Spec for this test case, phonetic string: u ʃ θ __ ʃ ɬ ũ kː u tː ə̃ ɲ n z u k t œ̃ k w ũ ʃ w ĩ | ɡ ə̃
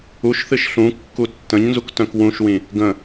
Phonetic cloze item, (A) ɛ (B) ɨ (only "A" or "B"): B